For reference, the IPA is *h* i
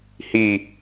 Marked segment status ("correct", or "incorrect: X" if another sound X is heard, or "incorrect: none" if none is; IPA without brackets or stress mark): correct